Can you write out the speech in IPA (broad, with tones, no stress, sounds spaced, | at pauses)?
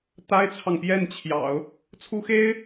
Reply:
t̪ a˥ ɪ̯ t͡sʰ ɑ˨ ŋ p j ɛ˥˩ n t͡ɕʰ j ɑ̰˨˩˦ ʊ̯ | t͡sʰ u˥ x e˥ ɪ̯